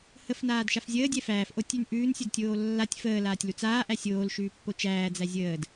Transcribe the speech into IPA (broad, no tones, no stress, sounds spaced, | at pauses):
h ə f n aː d ʃ a f zʲ əː dʲ ɛ f æː f ʔ o tʲ ʉ n ʔ ʉː n sʲ u d tʲ oː lː a tʲ f əː l aː tʲ l u t͡s aː ʔ æ sʲ oː l ʃ ʉː pː o t͡ʃ æː d͡z æ zʲ əː d